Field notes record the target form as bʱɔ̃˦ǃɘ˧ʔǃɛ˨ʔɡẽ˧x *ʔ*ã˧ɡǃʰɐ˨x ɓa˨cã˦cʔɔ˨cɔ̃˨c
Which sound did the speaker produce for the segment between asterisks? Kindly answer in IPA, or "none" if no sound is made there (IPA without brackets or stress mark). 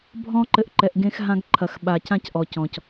ɦ